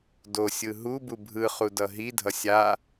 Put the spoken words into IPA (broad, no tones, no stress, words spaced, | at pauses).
dosʲɯ ɦubu bʱɯχudʌ ɦidʱʌ sʲa